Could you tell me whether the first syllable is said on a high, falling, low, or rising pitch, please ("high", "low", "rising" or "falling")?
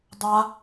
high